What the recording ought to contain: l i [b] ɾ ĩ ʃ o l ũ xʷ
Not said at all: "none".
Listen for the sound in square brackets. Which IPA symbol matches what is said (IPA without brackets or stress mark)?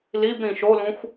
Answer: b